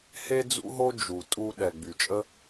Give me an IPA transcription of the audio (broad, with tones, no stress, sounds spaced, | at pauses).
h e˥ d͡z ṵ˥ ɦ o˥ d͡ʒ u˩ tʼ u˧ ɗ ɛ˩ ɡ͡b y˩ t͡ʃʼ ə˥